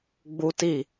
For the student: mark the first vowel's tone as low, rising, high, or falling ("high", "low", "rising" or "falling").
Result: high